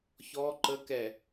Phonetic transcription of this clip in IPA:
ç ɔ ǃ ə k ɛ

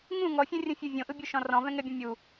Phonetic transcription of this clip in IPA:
ŋ ũ ŋ ɔ fʲ õ rʲ õ fʲ u vʲ õ ʔ ɯ bʲ o ʃ ɔ̃ r ɔ̃ v ɛ̃ ŋ ɛ bʲ õ mʲ u

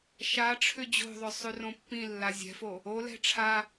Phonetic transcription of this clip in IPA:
ʃ a ʈ͡ʂʰ ʏ d͡ʑ o̤ ðˤ ʏ sˤ ʉ r õ pː ĩ lː a zʲ ɛ̤ f o | o l ɛ̤ ʈ͡ʂʰ a

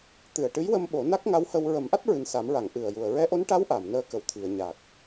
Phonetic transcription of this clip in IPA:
t̪ ɨ˨˩ ə̯ ʈ ɨ˧˥ j w ə˧ m ɓ o˨˩˦ n a˦˥ k̚ ŋ a˧˥ w h ə˧ w ɹ ə˨˩˦ m ʔ a˦˥ t̚ ɹ ɨ˨˩ n s a˨˩˦ m ɹ a˨˩˨ ŋ ʔ ɨ˨˩ ə̯ j u˨˩ ə̯ ɹ ɛ˧˥ ʔ o˧˥ n ʈ a˧˥ w ʔ a˨˩˨ m n əː˧ k ə˨˩ w t̪ʰ i˨˩˨ ə̯ ɲ a˨˩ k̚

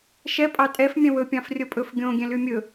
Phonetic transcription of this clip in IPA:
ʃ ɛ pʼ ɑ tʼ ɛ f mʲ ɛ̃ w ɵ pʲ ɑ̃ f rʲ o pʼ ɵ f ɡʲ õ ɡʲ ɛ̃ l y mʲ ɵ

